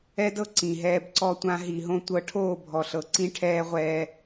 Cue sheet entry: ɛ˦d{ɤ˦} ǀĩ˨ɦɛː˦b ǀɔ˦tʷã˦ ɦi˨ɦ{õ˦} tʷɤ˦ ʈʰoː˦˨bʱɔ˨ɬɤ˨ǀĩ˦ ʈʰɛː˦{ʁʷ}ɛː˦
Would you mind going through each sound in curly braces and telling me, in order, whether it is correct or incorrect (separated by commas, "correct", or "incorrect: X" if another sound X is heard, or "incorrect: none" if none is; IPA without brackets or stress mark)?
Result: correct, correct, correct